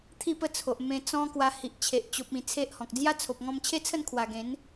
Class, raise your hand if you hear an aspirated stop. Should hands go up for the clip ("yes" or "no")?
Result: yes